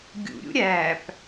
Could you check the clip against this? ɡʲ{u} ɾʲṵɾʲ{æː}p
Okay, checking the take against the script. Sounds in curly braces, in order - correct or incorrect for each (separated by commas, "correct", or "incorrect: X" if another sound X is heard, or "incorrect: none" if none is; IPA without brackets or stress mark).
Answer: incorrect: ṵ, correct